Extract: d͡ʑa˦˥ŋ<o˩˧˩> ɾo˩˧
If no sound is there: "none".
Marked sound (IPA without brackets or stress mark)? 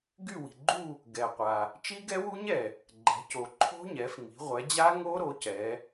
o˦˥